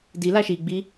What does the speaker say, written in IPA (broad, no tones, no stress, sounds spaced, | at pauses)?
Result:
d i l a ʃ i ɡ͡b i